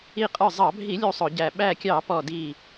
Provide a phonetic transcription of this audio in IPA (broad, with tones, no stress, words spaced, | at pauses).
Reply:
i˧˩qʼə˞˧˩zˤɑ˧˩˧bʱi˧˩˧ lʲu˧˩ sˤʊ˧˩˧ɟæ˧˩ ɓæ˧˩kʲɑ˧˩˧ pɔ˧˩di˧˩